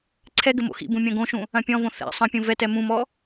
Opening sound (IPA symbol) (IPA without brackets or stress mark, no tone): ǀʰ